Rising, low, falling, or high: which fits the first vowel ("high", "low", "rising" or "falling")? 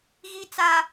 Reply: low